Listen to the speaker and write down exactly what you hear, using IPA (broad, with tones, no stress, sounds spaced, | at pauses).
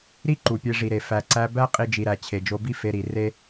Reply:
ɾ i˦ ǃ u˨ pʲ e˧ ʐ i˨ ɾ e˨ f æ˨ ǀ æ˧ b æ˦ qʼ i˦ d͡ʒ i˧ ɾ æ˧ t͡ɕʰ e˨ d͡ʒ o˧ b i˦ f e˧ ɾ i˨ r e˦